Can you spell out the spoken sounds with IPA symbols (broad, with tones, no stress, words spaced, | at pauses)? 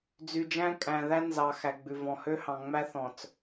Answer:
d͡zy˨d͡ʒæ̃˦kʼæ̃˨ðæ˦ nzɑ˨ xæ˨ɡ͡bʉ˨vɔ̃˨hø˦ hɑ̃˨ŋ͡mæ˦θɔ̃˨t͡s